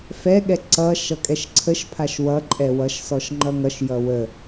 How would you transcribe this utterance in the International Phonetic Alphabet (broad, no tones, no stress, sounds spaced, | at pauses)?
f ɛ ɠ ɛ ǀ ʌ ʃ ʌ kʼ ɛ ʃ ǀʰ ə ʃ pʰ a ʃ w ʌ ǃʼ ɛ w ʌ ʃ s ɔ ʃ ŋ͡ǃ ʌ ŋ ʌ ʃ j ʌ w ə